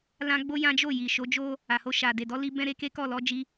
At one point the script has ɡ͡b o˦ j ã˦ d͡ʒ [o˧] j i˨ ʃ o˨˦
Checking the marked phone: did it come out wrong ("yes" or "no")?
yes